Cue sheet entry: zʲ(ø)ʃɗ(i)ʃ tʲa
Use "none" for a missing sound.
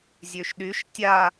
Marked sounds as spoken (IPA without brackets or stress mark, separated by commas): ø, y